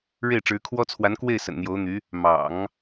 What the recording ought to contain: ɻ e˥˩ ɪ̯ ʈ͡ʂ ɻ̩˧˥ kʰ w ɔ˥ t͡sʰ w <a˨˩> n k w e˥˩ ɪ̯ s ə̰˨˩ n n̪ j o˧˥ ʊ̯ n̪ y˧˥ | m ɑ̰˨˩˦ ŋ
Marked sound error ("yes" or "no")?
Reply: yes